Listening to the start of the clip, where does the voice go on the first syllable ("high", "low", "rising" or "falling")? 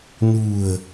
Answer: low